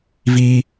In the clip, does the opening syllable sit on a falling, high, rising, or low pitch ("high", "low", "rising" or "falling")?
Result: high